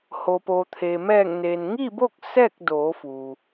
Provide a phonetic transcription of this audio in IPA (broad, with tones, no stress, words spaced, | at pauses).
ho˩po˩t̪ʰe˩ mɛː˧˩ŋneː˩nŋi˥˨bo˥˨k̚ sɛː˥˨k̚doː˩˧fuː˩